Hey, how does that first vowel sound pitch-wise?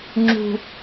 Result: low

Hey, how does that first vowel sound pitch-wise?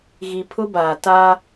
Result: low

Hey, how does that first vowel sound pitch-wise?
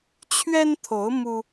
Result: high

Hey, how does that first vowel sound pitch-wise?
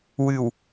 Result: low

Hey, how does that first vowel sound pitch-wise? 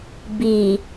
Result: low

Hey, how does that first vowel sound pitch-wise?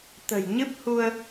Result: low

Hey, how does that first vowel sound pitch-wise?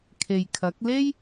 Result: low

